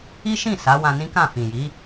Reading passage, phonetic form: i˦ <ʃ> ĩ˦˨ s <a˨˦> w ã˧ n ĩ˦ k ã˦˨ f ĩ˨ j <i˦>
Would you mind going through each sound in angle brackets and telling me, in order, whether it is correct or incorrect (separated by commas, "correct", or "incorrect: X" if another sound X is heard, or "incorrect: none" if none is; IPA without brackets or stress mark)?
correct, correct, incorrect: i˨˦